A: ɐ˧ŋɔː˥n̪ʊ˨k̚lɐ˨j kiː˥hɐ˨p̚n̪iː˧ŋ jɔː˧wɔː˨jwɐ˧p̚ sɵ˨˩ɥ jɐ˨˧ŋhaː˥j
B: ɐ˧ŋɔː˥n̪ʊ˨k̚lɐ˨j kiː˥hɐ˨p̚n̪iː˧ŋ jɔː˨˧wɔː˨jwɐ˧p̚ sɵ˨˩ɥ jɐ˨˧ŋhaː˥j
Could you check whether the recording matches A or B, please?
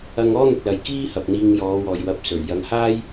B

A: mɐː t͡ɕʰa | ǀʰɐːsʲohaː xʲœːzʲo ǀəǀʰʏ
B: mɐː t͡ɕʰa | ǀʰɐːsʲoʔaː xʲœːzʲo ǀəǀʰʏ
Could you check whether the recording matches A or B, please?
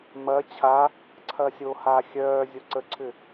A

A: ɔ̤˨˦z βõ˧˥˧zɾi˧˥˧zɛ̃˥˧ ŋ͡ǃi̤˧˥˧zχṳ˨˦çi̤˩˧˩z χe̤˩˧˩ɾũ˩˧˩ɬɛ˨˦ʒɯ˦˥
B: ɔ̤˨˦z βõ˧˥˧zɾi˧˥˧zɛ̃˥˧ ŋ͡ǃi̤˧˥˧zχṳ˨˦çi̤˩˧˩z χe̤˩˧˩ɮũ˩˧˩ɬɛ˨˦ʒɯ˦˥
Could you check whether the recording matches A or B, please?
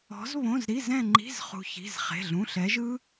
B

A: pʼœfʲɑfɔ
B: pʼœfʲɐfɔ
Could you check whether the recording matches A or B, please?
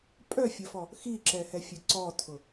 B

